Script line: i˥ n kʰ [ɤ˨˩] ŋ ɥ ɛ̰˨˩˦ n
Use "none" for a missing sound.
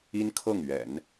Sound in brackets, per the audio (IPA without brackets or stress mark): ɤ˥˩